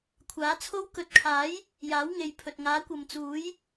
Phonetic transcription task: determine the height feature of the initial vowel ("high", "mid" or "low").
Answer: low